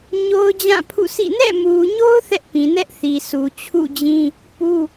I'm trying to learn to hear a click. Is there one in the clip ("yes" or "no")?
no